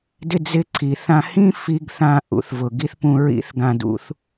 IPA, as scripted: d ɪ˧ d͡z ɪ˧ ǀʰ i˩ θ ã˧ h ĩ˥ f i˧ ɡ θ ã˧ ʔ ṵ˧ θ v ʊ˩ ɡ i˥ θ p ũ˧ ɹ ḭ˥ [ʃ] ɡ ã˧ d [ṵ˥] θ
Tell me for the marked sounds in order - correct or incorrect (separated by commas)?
incorrect, correct